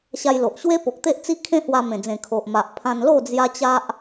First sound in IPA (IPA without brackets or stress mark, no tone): ɕ